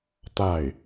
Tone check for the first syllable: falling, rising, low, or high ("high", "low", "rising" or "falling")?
falling